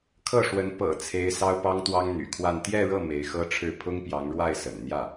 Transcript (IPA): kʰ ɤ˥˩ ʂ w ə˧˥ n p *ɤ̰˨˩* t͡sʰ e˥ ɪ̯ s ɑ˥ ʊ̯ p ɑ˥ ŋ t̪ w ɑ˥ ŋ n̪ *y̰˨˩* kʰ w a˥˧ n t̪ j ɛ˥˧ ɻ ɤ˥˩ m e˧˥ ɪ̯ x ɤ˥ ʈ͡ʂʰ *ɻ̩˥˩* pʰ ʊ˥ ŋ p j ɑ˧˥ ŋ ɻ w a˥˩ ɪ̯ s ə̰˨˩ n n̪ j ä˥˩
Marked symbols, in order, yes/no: yes, yes, yes

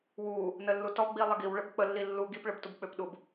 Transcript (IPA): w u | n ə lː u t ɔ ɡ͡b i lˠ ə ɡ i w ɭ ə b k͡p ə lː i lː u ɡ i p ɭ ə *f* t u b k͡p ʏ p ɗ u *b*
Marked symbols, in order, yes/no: no, yes

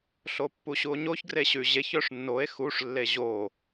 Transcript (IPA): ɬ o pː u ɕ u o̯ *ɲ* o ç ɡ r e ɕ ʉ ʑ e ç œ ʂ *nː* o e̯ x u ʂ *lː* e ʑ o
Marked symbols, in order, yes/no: yes, yes, yes

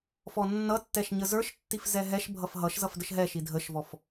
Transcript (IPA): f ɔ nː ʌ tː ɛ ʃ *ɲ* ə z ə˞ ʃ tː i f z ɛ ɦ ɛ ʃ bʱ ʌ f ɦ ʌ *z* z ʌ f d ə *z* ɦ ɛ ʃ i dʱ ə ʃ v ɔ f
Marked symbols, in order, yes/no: yes, no, no

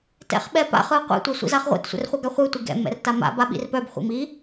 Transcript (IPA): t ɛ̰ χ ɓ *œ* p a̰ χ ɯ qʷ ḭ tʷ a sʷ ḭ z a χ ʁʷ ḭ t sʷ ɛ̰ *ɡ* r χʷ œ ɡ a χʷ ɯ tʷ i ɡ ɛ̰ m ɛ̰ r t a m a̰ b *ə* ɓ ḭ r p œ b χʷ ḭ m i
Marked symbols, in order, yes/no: no, no, no

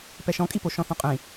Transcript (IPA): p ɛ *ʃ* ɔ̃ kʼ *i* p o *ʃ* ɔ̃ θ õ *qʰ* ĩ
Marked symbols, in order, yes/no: yes, yes, yes, no

